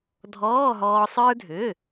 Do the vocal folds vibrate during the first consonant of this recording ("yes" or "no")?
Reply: yes